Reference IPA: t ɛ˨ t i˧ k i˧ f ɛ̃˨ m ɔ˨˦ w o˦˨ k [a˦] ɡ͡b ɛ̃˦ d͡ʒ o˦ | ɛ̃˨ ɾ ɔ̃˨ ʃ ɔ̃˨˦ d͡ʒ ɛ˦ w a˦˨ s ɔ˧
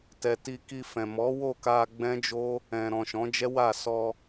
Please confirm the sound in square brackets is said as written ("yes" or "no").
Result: no